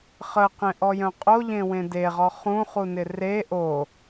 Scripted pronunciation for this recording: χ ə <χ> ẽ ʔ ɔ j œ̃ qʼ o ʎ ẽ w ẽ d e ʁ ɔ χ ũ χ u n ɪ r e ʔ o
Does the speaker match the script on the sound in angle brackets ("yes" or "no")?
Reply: no